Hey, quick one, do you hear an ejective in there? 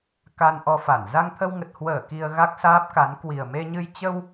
no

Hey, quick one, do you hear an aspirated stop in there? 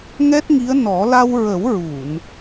no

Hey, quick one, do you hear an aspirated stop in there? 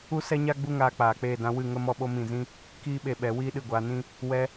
no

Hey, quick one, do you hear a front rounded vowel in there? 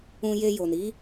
no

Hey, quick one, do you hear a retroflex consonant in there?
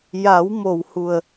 no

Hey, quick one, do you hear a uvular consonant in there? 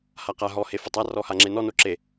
yes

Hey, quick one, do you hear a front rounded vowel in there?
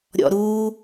no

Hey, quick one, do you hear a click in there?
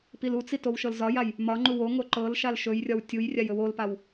yes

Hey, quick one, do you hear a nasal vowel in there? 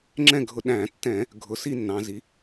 yes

